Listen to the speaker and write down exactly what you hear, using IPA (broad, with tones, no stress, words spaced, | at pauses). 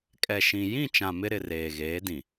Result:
kʼɛ˨ʃĩ˨ jĩ˦˨t͡ʃã˨ mɪ˦ɾɪ˨reː˨ ɣeː˨˦dĩ˨